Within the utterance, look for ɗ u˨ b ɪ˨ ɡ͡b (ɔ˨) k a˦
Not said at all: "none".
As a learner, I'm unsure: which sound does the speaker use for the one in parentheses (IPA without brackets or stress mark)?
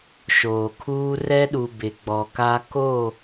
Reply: ɔ˨